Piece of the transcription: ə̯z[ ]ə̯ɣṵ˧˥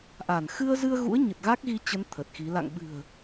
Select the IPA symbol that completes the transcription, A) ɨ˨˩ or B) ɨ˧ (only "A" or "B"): B